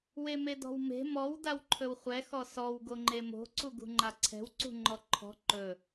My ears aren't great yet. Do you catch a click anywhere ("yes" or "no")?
yes